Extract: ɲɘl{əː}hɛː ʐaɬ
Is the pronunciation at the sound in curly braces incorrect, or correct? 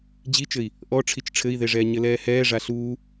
incorrect